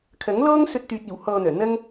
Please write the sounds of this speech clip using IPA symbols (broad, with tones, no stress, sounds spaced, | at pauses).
kʰ ɐ˨˥ ŋ l ɔː˥ ŋ s ɵ˧ t̚ t̪ yː˨ t̚ iː˨˩ w h ɔː˧ n̪ œː˨˩ n̪ ɐ˥ ŋ